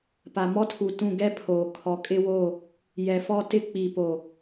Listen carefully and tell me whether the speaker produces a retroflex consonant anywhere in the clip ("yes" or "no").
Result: no